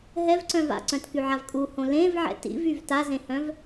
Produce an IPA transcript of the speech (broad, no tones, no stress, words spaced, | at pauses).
ɦɛvǀœ̃v a̰ǀœ̃tkyʕav kʼuhõ lẽvʕɛ̰ tḭvyv tazẽhœ̃v